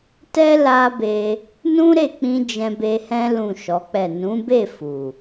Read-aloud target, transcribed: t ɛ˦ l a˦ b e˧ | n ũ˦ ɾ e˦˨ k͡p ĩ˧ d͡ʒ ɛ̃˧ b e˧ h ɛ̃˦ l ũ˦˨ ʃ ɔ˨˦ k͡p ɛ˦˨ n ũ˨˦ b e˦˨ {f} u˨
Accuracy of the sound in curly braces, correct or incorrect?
correct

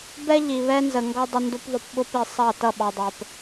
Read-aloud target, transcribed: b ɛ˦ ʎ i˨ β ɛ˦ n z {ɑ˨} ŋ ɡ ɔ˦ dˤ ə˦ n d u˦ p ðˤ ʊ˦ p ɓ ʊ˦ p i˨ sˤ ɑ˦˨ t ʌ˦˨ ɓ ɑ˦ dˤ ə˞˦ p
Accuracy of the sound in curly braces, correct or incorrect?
incorrect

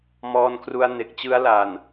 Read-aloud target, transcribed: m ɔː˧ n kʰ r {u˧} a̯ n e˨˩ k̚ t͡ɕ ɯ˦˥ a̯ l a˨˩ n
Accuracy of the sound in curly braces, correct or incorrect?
correct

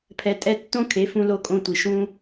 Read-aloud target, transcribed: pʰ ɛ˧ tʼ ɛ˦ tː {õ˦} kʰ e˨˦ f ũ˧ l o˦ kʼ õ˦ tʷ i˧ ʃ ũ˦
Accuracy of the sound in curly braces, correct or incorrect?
correct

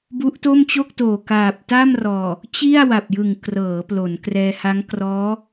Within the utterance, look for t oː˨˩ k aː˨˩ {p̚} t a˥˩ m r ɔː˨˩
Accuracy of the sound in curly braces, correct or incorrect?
correct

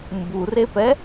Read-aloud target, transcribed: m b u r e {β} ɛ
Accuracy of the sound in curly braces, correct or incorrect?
incorrect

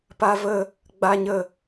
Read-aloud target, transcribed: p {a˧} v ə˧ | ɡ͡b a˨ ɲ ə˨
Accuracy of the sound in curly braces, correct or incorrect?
correct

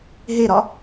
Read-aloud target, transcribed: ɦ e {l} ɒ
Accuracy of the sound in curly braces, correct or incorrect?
incorrect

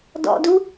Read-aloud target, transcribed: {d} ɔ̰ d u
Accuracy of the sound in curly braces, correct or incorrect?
correct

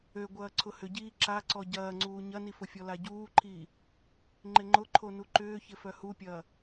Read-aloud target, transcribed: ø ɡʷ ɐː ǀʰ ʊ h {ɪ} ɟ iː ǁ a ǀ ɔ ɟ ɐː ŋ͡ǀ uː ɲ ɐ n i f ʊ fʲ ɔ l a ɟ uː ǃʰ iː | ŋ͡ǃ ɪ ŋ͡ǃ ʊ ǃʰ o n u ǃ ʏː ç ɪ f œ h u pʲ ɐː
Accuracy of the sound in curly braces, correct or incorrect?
incorrect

